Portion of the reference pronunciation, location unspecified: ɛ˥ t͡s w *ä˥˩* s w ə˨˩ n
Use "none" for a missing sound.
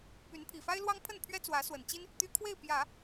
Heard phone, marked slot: ä˧˥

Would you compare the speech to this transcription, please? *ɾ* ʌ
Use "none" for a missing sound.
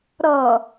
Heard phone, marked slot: ɾ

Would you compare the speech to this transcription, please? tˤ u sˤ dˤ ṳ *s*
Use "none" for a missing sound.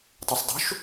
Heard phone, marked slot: ʃ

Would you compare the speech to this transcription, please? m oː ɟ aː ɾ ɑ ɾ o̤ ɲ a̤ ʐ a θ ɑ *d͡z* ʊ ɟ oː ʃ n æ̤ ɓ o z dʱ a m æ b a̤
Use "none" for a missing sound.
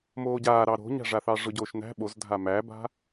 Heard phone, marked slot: ʐ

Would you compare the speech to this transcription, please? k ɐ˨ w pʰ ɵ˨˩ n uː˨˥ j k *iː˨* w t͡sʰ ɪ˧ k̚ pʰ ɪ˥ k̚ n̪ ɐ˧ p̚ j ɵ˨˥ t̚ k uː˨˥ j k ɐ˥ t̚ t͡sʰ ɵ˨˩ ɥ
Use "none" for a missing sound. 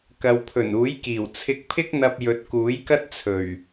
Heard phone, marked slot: iː˨˩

